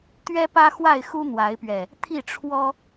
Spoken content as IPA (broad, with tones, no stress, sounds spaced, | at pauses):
t̪ ɥ ɛ˦ p ä˦ x w a˥˨ ɪ̯ x u˦ n̪ w a˨˦ ɪ̯ p ɥ ɛ˨˩ | t̪ʰ i˥˨ ʈ͡ʂʰ w ɔ˦